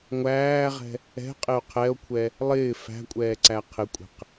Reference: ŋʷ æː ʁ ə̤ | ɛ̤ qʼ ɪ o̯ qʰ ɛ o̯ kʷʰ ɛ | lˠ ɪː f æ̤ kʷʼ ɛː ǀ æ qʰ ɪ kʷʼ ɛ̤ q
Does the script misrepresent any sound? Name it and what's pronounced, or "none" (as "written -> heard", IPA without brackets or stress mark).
ə̤ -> ɛ̤